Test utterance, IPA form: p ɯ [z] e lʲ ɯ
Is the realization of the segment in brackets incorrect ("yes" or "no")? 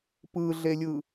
yes